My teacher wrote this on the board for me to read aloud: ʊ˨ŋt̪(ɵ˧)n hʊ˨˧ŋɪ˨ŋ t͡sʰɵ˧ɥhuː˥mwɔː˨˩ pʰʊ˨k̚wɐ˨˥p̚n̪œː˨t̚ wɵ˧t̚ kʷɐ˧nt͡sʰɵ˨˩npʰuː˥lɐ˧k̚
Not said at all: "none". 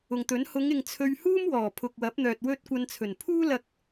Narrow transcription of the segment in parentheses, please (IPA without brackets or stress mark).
ɵ˨˥